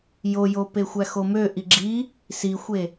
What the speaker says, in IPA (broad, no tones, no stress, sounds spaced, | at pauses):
j o j o p e xʷ æ x o m ø ʔ i ɡ͡ǁ i | s i xʷ e